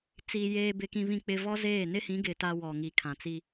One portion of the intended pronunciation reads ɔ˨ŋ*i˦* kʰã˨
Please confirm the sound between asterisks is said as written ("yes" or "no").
no